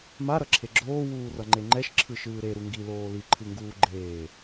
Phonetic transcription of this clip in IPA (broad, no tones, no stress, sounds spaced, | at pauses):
m a ɾ ʌ ǁʰ e ɡ͡ǁ oː w uː r ʌ ŋ͡ǃ e ŋ͡ǃ ɛ ʃ ǁʰ ɯ ʃ ɯː ɾ e ɾ u ŋ ɡ i l oː l i ǃʰ ɯ ŋ ɡ uː ɡ͡ǃ eː